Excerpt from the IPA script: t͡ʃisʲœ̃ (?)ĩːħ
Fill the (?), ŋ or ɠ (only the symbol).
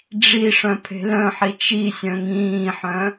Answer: ŋ